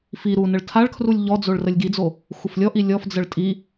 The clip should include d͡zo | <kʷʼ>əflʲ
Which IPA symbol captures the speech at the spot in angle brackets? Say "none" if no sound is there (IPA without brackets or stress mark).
xʷ